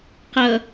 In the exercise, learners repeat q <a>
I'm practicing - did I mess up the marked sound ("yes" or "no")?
yes